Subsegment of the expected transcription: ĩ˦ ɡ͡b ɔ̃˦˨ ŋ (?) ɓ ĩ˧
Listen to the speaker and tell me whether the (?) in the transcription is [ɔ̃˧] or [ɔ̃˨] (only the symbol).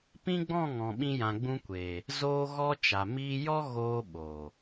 ɔ̃˨